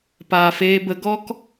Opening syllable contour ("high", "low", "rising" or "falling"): low